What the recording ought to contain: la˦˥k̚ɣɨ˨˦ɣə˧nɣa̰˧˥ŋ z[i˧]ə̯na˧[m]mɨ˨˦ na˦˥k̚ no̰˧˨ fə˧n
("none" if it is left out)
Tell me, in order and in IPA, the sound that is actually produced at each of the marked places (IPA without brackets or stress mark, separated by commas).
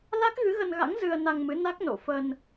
ɨ˧, ŋ